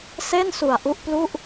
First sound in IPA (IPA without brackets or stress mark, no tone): s